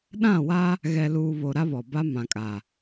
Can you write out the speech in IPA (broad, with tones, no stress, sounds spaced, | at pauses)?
ɗ ã˦˨ w a˦ | ɣ ɛ˨ l uː˨ β o˨ ɾ a˦ β ɔ˨ b a˦ m ã˨ kʼ a˨